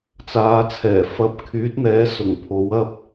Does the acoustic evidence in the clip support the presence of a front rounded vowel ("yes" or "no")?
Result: yes